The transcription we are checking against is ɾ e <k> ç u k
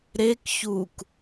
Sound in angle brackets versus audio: correct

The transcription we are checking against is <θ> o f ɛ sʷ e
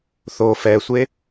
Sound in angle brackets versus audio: correct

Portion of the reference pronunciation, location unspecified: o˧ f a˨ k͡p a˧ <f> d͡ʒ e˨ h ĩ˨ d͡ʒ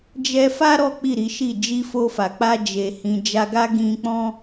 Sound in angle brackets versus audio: incorrect: none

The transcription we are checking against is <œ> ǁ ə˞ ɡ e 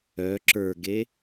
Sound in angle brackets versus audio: correct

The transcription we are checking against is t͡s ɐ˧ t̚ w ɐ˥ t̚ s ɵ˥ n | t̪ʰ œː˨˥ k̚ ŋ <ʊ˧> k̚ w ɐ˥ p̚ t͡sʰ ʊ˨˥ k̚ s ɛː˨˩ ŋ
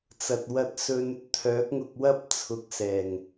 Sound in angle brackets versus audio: correct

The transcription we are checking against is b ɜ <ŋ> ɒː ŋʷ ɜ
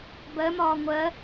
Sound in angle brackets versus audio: incorrect: m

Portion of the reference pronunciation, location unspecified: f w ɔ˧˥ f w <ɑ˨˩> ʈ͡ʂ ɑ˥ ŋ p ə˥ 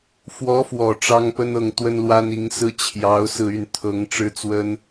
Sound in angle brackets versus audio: incorrect: ɔ˨˩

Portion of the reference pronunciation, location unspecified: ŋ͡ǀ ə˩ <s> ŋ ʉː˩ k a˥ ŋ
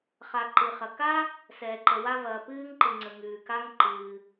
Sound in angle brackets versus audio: incorrect: none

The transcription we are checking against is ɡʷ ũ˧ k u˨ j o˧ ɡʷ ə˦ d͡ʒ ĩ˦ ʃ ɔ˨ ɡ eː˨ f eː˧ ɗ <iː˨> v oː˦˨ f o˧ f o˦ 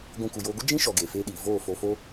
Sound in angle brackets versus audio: correct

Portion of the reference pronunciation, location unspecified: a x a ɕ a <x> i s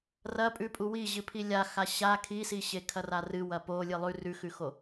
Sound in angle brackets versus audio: incorrect: kʰ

